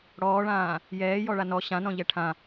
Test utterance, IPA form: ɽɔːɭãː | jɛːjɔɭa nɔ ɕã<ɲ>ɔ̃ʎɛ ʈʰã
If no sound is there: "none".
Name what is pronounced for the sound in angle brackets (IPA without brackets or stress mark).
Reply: n